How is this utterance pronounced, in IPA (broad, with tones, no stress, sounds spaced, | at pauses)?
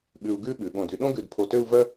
ɠ ʉ˧ u̯ ɡ ʉ˥ ɓ ʉ˩˧ ɠ õ˧˩ d y˧ ɗ õ˥ ɡ ʉ˧˩ d pʰ o˧˩ t ø˥˧ u̯ v œ˥